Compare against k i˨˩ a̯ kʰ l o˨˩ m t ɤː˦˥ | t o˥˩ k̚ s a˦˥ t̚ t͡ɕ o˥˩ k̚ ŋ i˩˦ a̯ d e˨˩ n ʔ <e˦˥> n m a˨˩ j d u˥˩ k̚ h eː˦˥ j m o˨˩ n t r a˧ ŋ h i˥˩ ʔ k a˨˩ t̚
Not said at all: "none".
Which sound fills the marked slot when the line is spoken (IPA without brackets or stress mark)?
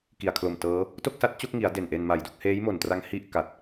e˧